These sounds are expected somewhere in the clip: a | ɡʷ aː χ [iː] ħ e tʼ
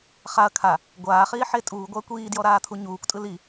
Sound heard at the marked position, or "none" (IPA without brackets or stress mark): iː